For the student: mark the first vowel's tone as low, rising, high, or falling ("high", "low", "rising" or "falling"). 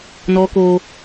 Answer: high